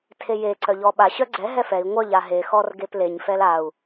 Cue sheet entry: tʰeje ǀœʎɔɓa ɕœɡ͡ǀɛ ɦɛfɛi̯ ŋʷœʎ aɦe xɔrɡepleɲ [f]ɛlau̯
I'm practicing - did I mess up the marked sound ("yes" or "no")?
no